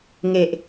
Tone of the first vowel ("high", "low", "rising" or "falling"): low